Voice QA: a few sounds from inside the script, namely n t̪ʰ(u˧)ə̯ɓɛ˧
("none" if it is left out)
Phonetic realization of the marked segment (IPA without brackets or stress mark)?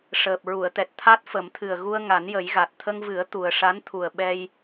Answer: u˨˩